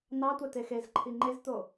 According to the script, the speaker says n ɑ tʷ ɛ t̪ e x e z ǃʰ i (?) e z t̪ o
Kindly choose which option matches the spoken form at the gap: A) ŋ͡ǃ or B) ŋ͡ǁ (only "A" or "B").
A